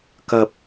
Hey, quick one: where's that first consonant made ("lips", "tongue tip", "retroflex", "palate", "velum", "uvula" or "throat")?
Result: velum